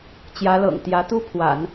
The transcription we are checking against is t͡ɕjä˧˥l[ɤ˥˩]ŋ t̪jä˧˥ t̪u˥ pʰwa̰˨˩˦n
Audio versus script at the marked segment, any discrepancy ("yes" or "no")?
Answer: yes